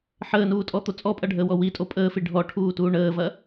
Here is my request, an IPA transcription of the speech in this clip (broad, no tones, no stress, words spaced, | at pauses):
ħəːnuːtʼɔt̪o t͡sʼɔpʼɐɖʱəːwɔ witʼo pʼəːfi ɖʱɔʈʰuːtuː ɳəːvɐ